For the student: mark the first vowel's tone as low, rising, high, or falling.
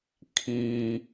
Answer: low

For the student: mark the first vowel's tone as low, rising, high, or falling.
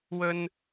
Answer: high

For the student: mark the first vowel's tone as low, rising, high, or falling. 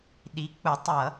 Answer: rising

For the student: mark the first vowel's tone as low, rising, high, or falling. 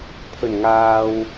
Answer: low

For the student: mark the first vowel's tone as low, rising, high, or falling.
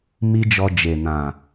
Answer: high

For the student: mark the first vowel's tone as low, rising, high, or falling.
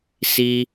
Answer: high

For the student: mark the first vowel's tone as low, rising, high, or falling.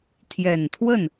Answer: low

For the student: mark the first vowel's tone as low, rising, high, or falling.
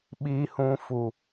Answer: low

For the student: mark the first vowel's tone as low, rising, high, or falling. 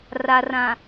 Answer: low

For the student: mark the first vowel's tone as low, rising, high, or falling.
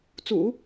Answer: low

